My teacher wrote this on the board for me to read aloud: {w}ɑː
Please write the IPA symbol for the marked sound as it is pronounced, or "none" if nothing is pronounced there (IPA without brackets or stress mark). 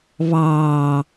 β